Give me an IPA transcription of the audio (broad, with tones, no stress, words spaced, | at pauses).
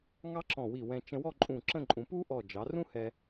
ŋɑ˥ǁɔ̃˧˩wi˧˩wɛ̃˧ t͡ʃə̃˧wɔ˥˧ǃʼũ˧˩ ǁə̃˥˧ǃʼũ˩˧ pu˥ʔɔ˧˩ d͡ʒɑ˩˧rũ˥hɛ˧